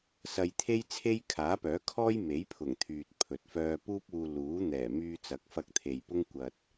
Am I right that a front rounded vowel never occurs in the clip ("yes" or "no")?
no